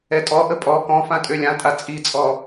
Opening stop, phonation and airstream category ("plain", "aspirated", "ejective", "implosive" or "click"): ejective